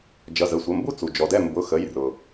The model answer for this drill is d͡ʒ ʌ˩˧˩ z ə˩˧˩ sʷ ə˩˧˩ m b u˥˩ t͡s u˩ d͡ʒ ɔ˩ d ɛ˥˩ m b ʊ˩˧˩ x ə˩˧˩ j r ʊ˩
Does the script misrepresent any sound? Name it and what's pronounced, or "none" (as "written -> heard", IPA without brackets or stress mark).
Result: none